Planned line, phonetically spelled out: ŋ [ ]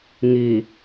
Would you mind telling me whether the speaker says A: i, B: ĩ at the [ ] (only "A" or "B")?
A